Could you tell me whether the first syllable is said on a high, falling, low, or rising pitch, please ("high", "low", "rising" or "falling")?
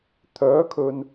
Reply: rising